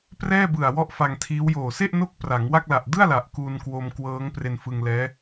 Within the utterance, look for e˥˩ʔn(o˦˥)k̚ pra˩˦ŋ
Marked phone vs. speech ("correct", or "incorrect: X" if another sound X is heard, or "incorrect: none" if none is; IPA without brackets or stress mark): correct